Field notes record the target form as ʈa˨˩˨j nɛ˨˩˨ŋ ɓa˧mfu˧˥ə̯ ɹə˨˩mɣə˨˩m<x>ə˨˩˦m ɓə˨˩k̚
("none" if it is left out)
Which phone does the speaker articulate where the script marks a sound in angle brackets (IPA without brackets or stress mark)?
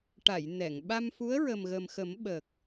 x